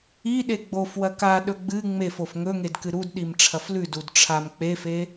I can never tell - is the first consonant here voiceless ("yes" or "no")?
no